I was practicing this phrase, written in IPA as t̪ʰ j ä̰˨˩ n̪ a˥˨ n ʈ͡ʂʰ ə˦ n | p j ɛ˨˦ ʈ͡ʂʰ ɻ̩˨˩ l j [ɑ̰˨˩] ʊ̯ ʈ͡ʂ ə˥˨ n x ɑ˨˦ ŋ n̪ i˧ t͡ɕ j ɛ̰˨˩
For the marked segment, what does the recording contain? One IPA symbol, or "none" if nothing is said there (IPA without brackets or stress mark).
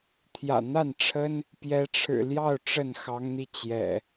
ɑ˥˨